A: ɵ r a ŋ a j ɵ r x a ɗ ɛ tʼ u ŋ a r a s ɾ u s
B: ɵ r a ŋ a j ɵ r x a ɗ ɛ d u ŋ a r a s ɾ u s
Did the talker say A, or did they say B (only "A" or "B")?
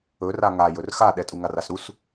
A